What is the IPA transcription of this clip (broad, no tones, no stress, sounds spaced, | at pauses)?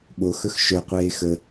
ɓ o x ɵ x ʃ œ qʷ eː x ə